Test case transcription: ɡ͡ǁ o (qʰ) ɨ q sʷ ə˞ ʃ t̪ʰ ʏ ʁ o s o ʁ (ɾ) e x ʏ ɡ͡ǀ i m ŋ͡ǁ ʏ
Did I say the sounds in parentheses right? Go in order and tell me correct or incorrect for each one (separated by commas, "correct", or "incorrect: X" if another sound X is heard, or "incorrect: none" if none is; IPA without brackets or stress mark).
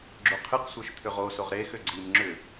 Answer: correct, correct